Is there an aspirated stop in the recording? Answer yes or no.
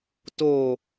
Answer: no